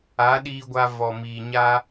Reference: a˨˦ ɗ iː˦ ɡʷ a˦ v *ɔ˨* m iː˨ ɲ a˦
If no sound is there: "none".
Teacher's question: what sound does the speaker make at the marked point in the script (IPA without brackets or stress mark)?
ɔ˨